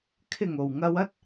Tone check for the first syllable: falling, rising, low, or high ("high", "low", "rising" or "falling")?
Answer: low